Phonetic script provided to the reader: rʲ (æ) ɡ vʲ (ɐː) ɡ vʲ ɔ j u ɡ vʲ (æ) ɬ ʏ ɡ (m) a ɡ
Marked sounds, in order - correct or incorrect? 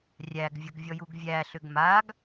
correct, incorrect: ɐ, correct, correct

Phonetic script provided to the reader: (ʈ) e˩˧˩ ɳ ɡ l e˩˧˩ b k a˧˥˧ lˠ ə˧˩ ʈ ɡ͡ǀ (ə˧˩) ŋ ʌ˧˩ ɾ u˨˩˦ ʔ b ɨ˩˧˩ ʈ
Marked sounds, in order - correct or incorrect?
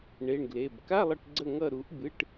incorrect: ɳ, correct

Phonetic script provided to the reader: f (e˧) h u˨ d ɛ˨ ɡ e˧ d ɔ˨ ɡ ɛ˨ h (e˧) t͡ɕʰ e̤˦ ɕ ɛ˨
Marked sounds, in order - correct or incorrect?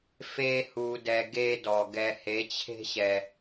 correct, incorrect: e˨˦

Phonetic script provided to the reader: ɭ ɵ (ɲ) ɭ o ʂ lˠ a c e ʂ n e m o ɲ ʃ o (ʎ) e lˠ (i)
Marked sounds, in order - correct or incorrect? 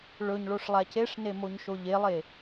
correct, correct, incorrect: e

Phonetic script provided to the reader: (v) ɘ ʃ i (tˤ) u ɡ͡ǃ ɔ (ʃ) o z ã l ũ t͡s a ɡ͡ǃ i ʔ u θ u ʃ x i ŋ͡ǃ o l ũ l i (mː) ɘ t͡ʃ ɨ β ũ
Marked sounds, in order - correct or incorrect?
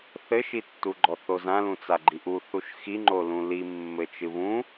incorrect: θ, incorrect: tː, incorrect: θ, correct

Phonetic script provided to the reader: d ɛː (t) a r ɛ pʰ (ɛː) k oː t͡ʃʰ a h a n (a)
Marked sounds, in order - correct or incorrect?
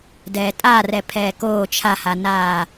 incorrect: tʼ, correct, incorrect: aː

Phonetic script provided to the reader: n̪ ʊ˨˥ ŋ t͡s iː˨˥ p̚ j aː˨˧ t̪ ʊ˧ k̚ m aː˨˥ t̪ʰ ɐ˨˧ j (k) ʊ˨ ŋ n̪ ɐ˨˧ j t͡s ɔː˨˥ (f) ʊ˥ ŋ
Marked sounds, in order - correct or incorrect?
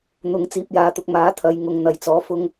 incorrect: ŋ, correct

